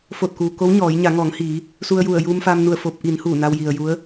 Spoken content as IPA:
f o˧˩ t̚ k uː˩ k o˧˥ w ɲ ɔː˩˧ j ɲ a˩˧ ŋ ɔː˩˧ ŋ h iː˩˧ | s u˧ ə̯ j u˧˩ ə̯ j uː˧ m f a˧ m n u˧˩ ə̯ f o˧ p̚ ʔ i˩˧ n h uː˧˩ n a˧ w j i˩ ə̯ j u˧˥ ə̯

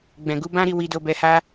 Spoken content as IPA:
ɡ͡b ɛ̃˨ ɡ u˨˦ b ã˦ ɾ i˦˨ w i˨˦ d o˧ b ɛ˧ h a˦

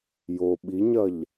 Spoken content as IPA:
j o ɓ i ɲ ɐ ʎ

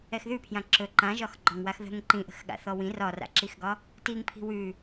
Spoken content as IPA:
ɛ x ð ʉ pʰ j ã ǁ ɵ ǃ ã ʒ ɒ x ɡ͡ǃ ɒ ŋ w a x ð ə̤ ŋ ǃ ĩ ʔ ə̤ x ɠ a̰ θ ɔ w ĩ r ɒ r a̰ ǁ i x ɡ ɒ | t i ŋ pʰ i̤ w ʉ

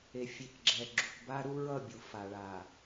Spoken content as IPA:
e˨ fʲ e˨ k ɡ͡ǁ ɛ˨ ɡ͡ǁ u˨ k b a˦ ɾ u˦ ɹ ʌ˦˨ bʲ u˨ f a˨ ɭ a˨

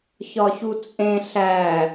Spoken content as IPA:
ç ɒ ç u t͡sʼ ẽ ɬ æ

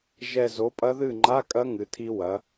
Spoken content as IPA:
ʒ ɛ˨˩ z o˩˧ pʼ ɐ˦˥ ð ɨ˥˨ ŋ͡ǃ a˧˥˧ kʼ ɐ˦˥ ŋ ɨ˩˧ tʰ i˧ w ɐ˩˧

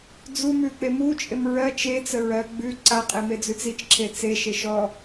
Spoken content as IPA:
d͡z u m ʉ k͡p e m u t͡ʃʼ e m ɹ ɜ t͡ʃ e t͡s ə ɹ ɜ ɡ͡b ʉ ǀ a qʼ e m e d͡z ʉ t͡s i t͡ʃ ǁʰ e t͡s e ʃ e ʃ ɔ

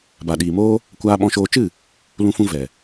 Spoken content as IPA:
b a˨ ɗ iː˨ m oː˦ | kʷ aː˧ ɓ ɔ̃˧ ʃ oː˧ t͡ʃ ɨ˦˨ | l ũ˧ f ũ˧ v ɛ˨

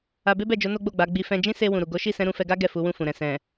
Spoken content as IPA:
a˧ b e˦ b ɛ˦˨ d͡ʒ o˨˦ n o˦ ɡ͡b o˦˨ ɡ͡b a˨˦ ɡ͡b i˧ f ɛ̃˧ d͡ʒ ĩ˦ s e˧ w ũ˨ ɾ u˨ ɡ o˨˦ ʃ i˦˨ s ɛ̃˨˦ ɾ ũ˧ f ɛ˧ ɡ a˦ ɡ ɛ˦˨ f u˨˦ w ũ˦˨ f ũ˨ ɾ ɛ̃˨ s ɛ̃˨

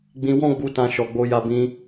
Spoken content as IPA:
ɡ͡b ĩ˧ w ɔ̃˦ ɡ͡b u˧ t ã˧ ʃ ɔ˨ ɡ͡b o˧ j a˧ b ĩ˧

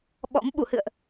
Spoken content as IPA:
ɓ ɔ̰˧˥ m ɓ u˧˩ h ɨ̰˧˨ ə̯ ʔ

